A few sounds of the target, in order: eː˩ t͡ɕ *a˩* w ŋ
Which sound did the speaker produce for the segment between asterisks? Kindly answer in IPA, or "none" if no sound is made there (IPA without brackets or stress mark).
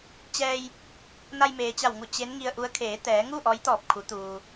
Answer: a˧˩